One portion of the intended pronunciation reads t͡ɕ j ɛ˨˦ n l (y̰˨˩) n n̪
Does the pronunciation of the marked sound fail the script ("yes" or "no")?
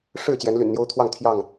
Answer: no